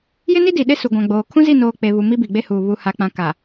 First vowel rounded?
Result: no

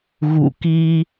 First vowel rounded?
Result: yes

